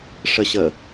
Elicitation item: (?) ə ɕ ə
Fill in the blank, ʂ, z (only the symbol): ʂ